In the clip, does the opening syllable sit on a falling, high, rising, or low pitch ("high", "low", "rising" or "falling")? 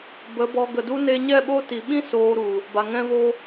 rising